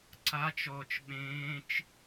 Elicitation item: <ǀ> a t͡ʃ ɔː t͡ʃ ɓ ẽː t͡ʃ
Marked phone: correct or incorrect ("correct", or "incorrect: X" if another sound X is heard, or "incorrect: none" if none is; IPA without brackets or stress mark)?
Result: correct